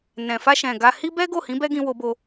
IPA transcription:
nɛ̃˨fa˧ʃɛ̃˨ ɡa˧ hi˦ bɛ˦ɡo˦˨hĩ˨˦ bɛ˦ɡĩ˧ wo˧bo˧

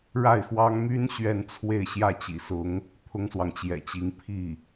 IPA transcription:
ɻa˥˩ɪ̯xwɑ˥ŋ my˥n ɕɥɛ˥˧nt͡sʰwe˥˧ɪ̯ ɕjä˥˩t͡ɕḭ˨˩sʊ˧˥ŋ | t̪ʰʊ˥ŋswɑ˨ŋt͡ɕjɛ̰˨˩t͡ɕi˧˥ŋ pʰi˥˩

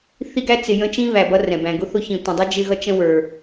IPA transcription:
θi˦ɡæ˦ t͡sɪ˨ jə̃˥t͡ʃĩ˥ βæ˨bʌ˦rɛ̃˩bæ̃˨ ɡʊ˥θʊ˦çĩ˨ tʷə̃˨ dˤʌ˥d͡ʒɪ˦ɣʌ˦ t͡ʃə̃˥wə˞˨

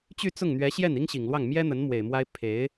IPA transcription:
t͡ɕy˥˧t͡sʊ˥˩ŋn̪ɥɛ˧˥ɕjɛ˥˩n i˥ŋɕi˨˩ŋlwɑ˥˩ŋ mjɛ˥n̪ə˧˥n mwe˨˩ɪ̯mwa˥ɪ̯ pʰe˧˥ɪ̯

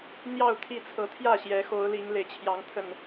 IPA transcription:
n̪jɑ˥˨ʊ̯t̪ʰi˥˨ t͡sʰɤ˨˦t̪ʰjä˥˨ ɕjɛ˨˦xo˨˦ʊ̯li˨˦ŋ le˨˩ɪ̯t͡ɕʰjɑ˨˦ŋt̪ʰə˨˩n

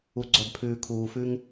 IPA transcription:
u˨ ɡ͡ǀœ˨bpʰʉː˨kʰuː˨ fʉ˦ŋ

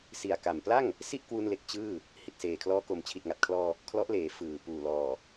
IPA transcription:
si˨˩a̯ka˨˩mpla˥˩ŋ | si˥˩ʔkwu˧nle˨˩k̚ t͡ɕɯː˥˩ | hi˨˩t̚seː˨˩kʰlɔː˧ ko˨˩mt͡ɕʰi˨˩t̚ŋa˨˩t̚kʰlɔː˧ | kʰlɔ˦˥ʔleː˩˦ fɯː˨˩ puː˨˩lɔː˨˩

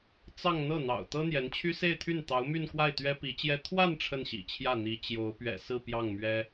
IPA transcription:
t͡sɑ˥˧ŋ n̪ɤ˥˩n̪ɑ̰˨˩ʊ̯ t̪ɤ˥n̪jɛ˧˥nt͡ɕʰy˥ se˥˧ɪ̯t̪ʰy˥˩nt̪ɑ˧˥ʊ̯my˥˧n kwa˥˩ɪ̯t̪ɥɛ˥pi˧˥t͡ɕjɛ˥ t̪ʰwa˥˧n ʈ͡ʂʰə˥˩nɕḭ˨˩t͡ɕʰjä˥˩ n̪i˧˥ t͡ɕjo˧˥ʊ̯pɥɛ̰˨˩ sɹ̩˥˧ pjɑ˥˩ŋmɥɛ˥

